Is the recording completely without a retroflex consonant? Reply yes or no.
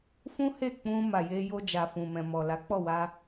yes